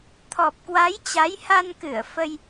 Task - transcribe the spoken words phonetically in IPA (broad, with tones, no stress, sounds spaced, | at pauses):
t̪ʰ ɔ˨˩ p̚ k w a˨˦ j t͡ɕ a˨˦ j h a˧ n k ɨ˧˩ ə̯ f ə˧ j